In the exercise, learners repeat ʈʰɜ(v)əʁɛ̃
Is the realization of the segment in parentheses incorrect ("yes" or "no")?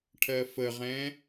yes